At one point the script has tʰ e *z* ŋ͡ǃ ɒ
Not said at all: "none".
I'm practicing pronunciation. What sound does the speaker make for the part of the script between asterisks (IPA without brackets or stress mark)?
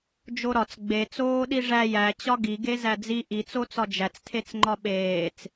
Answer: t͡s